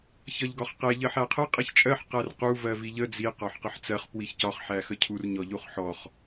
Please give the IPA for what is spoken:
ç ʌ ʎ ɡ ɒ χ q ɛ ʎ ɜ ħ æ qʰ ə qʼ i ç t͡ʃʼ ɜ ħ q æ r q u v ɜ v i ʎ ə d͡z i q ɒ ħ q ə ħ t͡s ɜ χ p w i ç c ɒ χ ħ æ x ə cʰ u r ɲ ɔ ʎ u χ ħ ɔ χ

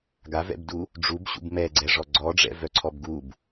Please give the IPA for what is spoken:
ɡ a v ɛ̰ b d u | ɖ͡ʐ u b ɕ ṵ b m ɛ ɡ͡ǀ ɛ ʐ ɔ ɡ͡ǀ ɔ ɖ͡ʐ ɛ̰ v œ ǀʰ ɔ b ɡ u b

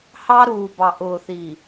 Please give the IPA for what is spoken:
h ɑ˦ ɾ uː˨ b ɑ˨ ʔ ʊː˨ θ i˨

